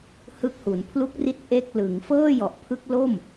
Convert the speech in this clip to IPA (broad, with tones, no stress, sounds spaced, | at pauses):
h ɯ˦˥ k̚ h u˩˦ n pʰ l u˦˥ k̚ r i˦˥ t̚ ʔ e˥˩ k̚ l ɯ˩˦ ŋ f ɤː˥˩ j ɔ˨˩ ʔ pʰ ɯ˦˥ k̚ l o˥˩ m